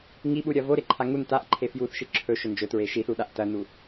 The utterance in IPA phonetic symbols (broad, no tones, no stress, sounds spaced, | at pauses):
ŋ i ɓ u ɾʲ ɐ v o ɾ e ǃʰ a ŋ u n t a ʔ ǃʰ e f j u θ ʃ ɨ ǁʰ ɵ ʃ ɵ n d͡ʒ ɵ t ɹ e ʃ i θ u ɗ a ʔ t ɐ n u